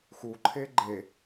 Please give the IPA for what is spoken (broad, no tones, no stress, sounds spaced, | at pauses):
x u ǃʰ e ɡ͡ǃ e